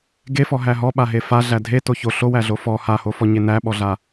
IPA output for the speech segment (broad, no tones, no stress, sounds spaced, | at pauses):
ɡ e f ɔ ɦ æ ɦ ɔ ɓ a ɦ e f a ɮ æ dʱ e t o ç o ɬ o w æ ɮ o f ɔ h a h o f ɔ ɲ e n æ ɓ ɔ ɮ a